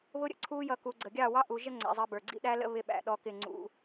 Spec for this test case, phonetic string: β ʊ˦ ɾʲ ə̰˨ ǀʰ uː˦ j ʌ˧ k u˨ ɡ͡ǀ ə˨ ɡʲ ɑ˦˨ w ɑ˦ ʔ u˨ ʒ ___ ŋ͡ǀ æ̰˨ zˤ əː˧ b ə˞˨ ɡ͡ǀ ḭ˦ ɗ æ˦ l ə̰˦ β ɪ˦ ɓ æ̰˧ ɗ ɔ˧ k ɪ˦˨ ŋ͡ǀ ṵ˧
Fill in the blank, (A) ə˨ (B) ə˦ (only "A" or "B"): B